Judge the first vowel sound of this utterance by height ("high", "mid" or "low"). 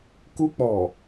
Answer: high